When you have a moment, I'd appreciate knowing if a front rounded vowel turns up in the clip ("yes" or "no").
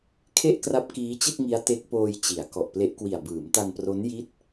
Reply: no